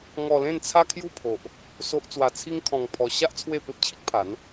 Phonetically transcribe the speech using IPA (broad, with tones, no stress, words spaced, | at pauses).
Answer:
ŋɔ˧lẽ˥˧nt͡sʰa˦ kʰju˥˧pʰo˨ʔ | so˦ʔ t͡swa˧t͡sʰi˦ŋkʰɔ̃˧ŋ pʰɔ˧ ɕa˦ʔ t͡sʰwe˥˧pe˦p̚ t͡ɕʰi˦k̚pʰa˨˦n